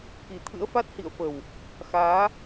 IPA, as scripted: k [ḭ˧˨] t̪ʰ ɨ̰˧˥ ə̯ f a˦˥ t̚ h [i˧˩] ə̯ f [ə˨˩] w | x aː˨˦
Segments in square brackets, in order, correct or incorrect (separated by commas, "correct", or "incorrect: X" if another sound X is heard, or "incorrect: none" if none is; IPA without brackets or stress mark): incorrect: i˨˩, incorrect: ḭ˧˨, correct